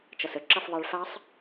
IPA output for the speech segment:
t͡ʃ ʌ s ə ǁ ʌ f ðˤ e ɭ f a sˤ

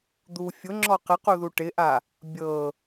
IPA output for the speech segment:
d̪ u fʲ ʊ ŋ͡ǁ ɔ q ɪ q u ð u ʈ ɪ ʔ a | bʲ ɤ

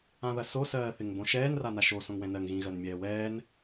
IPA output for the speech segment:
ã ð ɐ s o s ɜː θ ɪ ŋ b õ ʃ ɛː n r a n a ʃ o s õ ŋ w ɛ̃ n ɜ ŋ ɣ ĩ ɣ ɜ n mʲ ɛː w ɛː n

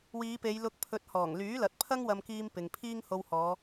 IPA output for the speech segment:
w iː˨˧ p e˨˧ j l ʊ˧ k̚ pʰ ɵ˨˥ t̚ h ɔː˨˩ ŋ l yː˨˥ l ɐ˨ t̚ pʰ ɐ˥ ŋ w ɐ˧ m k iː˧ m p ɪ˨ ŋ pʰ iː˥ ŋ h o˧ w h ɔː˨˧

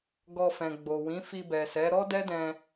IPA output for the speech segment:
ɡ ɔ˧ f ɛ̃˨ ɡ͡b o˨ w ĩ˨˦ f i˧ b ɛ˨ s ɛ˨˦ ɾ ɔ˦ d ɛ˦ d ɛ̃˧

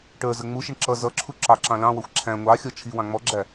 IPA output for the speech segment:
ʈ ə˞ z ə ŋ͡m u ʃ ɪ ɳ ǁ ʌ z ʌ ǁʰ u ǁ ɑ ǁ ɑ̃ l ɑ̃ w ʌ xʷ ǁʰ æ̃ ŋʷ ɑ xʲ ɔ t͡ʃʰ i w ɑ̃ ŋ͡m ɔ ɡ͡ǁ æ

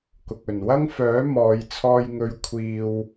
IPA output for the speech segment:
k ʊ˨ k̚ ɵ˨˩ n w ɐ˥ ŋ f œː˨˥ m ɔː˨˧ j t͡sʰ ɔː˧ j ŋ ɵ˧ ɥ kʷʰ iː˧ w

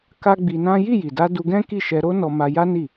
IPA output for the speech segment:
k a˦ ɡ͡b i˧ n ã˦ j i˦˨ j i˨ d a˧ d u˧ ɡ ɛ̃˦ k i˦˨ ʃ ɛ˧ ɾ o˦ n ɔ˧ m a˧ j a˦ n i˦˨

